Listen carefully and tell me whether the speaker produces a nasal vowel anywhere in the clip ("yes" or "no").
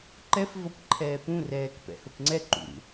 yes